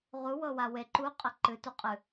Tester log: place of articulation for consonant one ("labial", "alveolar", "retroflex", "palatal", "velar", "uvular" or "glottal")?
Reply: uvular